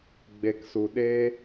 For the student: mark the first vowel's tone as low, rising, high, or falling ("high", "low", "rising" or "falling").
low